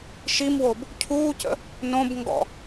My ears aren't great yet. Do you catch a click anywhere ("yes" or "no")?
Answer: no